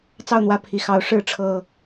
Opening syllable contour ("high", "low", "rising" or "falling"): falling